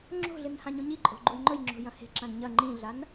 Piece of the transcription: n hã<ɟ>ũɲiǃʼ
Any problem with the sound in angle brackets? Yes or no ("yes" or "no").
yes